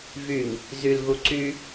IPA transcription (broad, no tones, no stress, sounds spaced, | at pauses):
v y ŋ | z y l ɣ u ǀ y